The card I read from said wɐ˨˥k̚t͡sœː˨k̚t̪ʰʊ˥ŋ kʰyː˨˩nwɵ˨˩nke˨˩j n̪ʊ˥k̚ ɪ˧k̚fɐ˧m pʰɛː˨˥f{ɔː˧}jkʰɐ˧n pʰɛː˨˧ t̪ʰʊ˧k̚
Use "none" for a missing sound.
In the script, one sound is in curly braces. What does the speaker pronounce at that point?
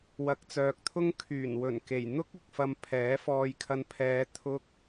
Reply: ɔː˧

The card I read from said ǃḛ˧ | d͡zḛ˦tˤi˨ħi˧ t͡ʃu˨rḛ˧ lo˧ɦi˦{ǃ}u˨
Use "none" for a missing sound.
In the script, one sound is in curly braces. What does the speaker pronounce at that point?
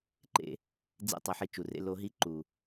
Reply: ǃ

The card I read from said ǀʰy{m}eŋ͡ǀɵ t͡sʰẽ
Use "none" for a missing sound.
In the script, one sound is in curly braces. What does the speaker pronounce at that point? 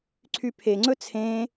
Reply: pʰ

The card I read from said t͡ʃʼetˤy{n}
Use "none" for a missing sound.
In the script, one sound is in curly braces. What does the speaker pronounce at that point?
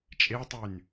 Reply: n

